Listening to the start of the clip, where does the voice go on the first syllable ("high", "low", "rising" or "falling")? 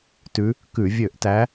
rising